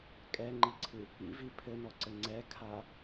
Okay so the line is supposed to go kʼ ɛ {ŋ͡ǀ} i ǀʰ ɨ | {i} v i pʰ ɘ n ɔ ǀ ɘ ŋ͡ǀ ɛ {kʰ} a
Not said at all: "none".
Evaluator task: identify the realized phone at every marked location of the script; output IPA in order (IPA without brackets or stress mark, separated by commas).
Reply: ŋ͡ǃ, ḭ, kʰ